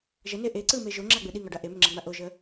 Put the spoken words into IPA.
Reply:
ʒəne ʔe ǀɯme ʒoŋ͡ǁaɡ͡bɯ ɗiŋɒɖa ʔemʏŋ͡ǁaŋ͡ma ʔoʒə

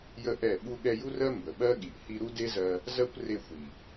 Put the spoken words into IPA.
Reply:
jə˦ʔɛ˦˨ ɓu˧ɠɛ˧ju˦rɜ˦ mbə˨ɓɜ˦ɠi˨ʔ hi˧ɾu˦de˦zɜ˧ | zɜ˦kʷre˧xʷi˨

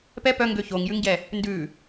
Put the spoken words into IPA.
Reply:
pɛ pœŋɡø çoŋjʉŋɟɛ | ndʉ

